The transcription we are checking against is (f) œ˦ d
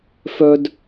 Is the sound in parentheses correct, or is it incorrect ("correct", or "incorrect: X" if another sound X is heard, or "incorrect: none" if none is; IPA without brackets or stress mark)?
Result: correct